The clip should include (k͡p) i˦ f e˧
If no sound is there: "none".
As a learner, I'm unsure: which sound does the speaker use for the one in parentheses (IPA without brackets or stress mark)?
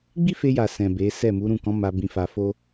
ɡ͡b